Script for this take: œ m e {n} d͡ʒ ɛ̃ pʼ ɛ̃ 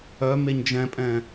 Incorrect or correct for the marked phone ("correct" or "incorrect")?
incorrect